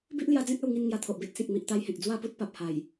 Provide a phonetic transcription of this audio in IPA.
bi˦ʔlja˧d͡zẽ˦k̚ a˧wŋi˧n ŋja˧t̪ʰo˨ʔbe˦t̚sĩ˨k̚ mi˨ʔt̪a˧jhẽ˨k̚ d͡zwa˥˧pu˦t̚ pa˨p̚ha˨˩j

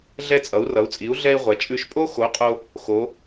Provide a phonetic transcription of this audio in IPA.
ɮɛ˧t͡sʼʌ˩˧u̯rʌ˩˧u̯t͡sʼi˩˧u̯ ɮɛ˧i̯ʁʷɛ˩˧ t͡ʃʼʉ˧˩ʃpʼo˥ xo˨˥qʼo˧ | xo˩˧

